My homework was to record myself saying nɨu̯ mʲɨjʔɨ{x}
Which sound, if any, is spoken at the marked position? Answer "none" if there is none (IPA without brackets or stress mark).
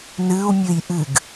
ɡ